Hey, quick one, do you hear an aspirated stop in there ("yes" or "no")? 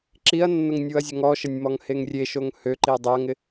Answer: no